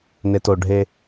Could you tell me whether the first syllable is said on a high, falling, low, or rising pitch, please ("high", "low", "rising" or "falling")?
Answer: low